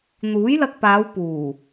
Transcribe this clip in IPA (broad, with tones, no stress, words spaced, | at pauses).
n̪uː˨˥jlɐ˧k̚paː˨˧w puː˨˩